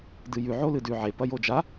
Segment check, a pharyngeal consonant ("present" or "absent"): present